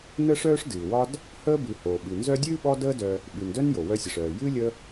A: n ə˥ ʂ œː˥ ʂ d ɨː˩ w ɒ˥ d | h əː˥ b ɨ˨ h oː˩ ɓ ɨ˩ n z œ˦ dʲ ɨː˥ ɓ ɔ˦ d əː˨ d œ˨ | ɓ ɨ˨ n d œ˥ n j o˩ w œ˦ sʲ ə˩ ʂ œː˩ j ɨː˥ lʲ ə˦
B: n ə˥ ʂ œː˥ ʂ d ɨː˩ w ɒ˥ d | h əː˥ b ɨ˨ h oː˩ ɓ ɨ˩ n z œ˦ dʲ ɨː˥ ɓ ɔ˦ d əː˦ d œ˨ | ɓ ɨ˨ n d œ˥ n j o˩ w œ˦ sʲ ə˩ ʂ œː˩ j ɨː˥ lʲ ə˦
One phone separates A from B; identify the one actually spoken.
B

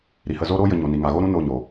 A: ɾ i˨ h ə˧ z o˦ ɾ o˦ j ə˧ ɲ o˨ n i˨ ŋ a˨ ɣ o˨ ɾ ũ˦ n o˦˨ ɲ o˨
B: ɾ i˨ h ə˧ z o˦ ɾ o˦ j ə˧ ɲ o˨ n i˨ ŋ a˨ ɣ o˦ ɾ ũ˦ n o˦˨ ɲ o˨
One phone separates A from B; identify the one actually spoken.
B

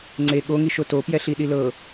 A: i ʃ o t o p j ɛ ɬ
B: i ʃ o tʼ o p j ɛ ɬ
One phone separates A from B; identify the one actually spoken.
A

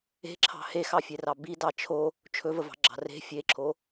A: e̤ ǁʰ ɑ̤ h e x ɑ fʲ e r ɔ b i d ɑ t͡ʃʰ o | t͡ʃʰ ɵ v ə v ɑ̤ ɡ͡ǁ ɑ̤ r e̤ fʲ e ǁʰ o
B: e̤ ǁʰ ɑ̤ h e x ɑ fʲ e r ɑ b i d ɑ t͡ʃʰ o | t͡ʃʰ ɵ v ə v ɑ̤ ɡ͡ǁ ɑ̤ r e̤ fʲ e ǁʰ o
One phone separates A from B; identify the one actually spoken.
B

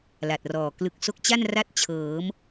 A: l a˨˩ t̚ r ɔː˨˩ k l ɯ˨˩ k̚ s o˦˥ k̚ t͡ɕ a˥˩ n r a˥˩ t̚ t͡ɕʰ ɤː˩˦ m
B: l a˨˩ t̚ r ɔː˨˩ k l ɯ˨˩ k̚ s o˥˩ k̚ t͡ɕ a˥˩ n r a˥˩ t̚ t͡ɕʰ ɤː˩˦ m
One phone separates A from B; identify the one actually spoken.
A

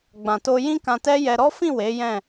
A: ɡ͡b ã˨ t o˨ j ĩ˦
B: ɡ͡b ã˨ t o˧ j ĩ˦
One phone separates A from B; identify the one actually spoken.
B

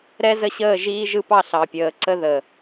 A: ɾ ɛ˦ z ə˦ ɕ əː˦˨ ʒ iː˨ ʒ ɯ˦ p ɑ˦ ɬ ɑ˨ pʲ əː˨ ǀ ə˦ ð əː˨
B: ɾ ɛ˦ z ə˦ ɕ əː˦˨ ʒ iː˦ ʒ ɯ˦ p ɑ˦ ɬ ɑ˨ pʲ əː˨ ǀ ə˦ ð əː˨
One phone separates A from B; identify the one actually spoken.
B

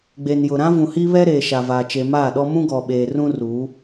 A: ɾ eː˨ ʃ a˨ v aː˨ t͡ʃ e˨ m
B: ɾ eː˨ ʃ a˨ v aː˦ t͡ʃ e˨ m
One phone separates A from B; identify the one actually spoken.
A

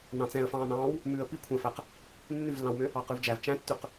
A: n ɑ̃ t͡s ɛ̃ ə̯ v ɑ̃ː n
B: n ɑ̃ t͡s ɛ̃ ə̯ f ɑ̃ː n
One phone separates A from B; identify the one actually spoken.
B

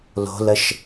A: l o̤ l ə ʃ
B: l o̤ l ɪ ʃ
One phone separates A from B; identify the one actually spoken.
A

